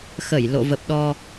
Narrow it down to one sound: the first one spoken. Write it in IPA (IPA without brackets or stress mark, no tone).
x